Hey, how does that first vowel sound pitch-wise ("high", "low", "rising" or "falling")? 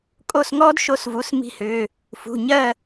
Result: falling